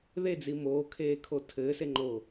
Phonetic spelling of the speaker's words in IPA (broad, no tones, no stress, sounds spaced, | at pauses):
ð e d͡z i m oː kʰ eː kʰ o tʰ ɘː s e ŋ͡ǃ oː